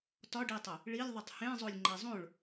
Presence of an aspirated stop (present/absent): absent